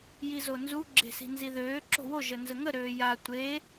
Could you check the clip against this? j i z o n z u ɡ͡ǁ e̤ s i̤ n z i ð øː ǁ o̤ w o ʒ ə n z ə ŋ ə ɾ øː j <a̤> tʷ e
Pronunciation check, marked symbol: incorrect: a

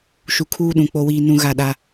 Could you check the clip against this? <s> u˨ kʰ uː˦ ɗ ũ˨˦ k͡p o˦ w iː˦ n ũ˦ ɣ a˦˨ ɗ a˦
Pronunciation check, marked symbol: incorrect: ʃ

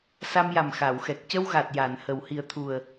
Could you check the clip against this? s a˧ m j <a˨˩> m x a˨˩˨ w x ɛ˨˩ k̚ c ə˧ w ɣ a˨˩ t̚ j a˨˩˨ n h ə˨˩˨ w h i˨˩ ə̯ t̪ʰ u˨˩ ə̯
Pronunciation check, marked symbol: correct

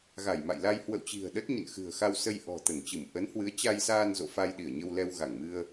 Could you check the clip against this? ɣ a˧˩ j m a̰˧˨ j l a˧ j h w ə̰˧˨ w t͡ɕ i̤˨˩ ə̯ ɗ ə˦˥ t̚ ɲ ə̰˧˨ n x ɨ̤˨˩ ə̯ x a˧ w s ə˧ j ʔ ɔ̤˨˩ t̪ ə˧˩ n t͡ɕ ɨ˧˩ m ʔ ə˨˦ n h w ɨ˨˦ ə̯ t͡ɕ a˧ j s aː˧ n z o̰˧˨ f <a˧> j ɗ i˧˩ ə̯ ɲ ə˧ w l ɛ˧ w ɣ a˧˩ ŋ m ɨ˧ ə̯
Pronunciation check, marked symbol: correct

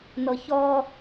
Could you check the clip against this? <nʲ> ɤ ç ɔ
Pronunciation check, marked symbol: incorrect: n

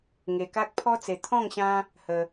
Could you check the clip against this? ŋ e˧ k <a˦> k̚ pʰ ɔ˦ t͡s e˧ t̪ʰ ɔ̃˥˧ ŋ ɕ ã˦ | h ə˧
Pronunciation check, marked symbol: correct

